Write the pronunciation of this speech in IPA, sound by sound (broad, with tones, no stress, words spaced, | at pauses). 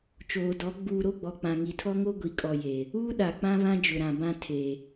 t͡ʃoː˨dɔ˨˦ ɡ͡buː˨ɾo˦˨ɡ͡bɔ˨ k͡pã˨ŋi˨tʰɔ˦ ŋo˦ɡʷi˨kʼɔ˨je˨ | uː˦ɗa˨k͡pã˦ βã˦d͡ʒʊ˨ɾã˨bã˦ tʰe˨